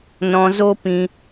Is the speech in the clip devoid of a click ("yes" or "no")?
yes